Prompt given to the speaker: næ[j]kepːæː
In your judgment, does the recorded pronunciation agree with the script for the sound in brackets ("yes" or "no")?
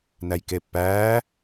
yes